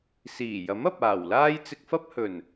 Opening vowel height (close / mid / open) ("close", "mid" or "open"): close